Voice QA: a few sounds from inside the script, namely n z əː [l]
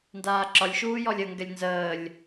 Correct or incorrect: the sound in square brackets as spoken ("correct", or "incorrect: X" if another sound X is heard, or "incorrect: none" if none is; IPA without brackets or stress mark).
incorrect: lʲ